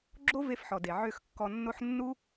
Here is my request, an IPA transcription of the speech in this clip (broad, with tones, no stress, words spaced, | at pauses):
ɡ͡ǁo˦ve˧fħɔ˨de˨ ʕø˦˨xkːɔ˧nːo˦ħ nːu˦